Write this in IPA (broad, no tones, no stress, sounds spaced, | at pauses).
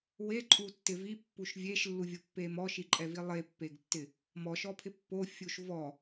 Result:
w e ǃʼ u tː ɪ v i pː u ʃ vʲ e ʃ lː u vʲ ʊ pː e m ɔ ʃ i ǃʼ ɛ v i lˠ e pː e ɡ tː ɪ | m ɔ ʃ ɔ pʰ ɪ pː o fʲ u ʃ v ɔ